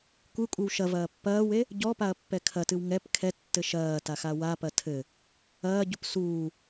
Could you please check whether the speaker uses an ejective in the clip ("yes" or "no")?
yes